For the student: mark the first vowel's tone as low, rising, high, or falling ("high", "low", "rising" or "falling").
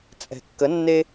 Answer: low